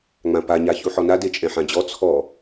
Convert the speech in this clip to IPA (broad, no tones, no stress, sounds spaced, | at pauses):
ŋ͡m ã p a ɲ a ç u ħ ɔ n a d e t͡ʃʼ ɛ̃ ħ ã d͡ʑ ɔ t͡sʰ ɔ